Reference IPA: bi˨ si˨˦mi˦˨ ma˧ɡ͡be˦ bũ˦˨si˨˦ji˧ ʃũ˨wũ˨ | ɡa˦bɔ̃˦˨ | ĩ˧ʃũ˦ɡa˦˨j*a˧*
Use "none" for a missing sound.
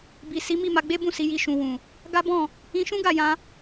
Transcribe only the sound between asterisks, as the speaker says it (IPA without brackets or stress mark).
ã˧